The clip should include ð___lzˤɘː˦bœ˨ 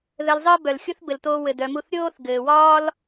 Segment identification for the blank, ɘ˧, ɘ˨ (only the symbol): ɘ˧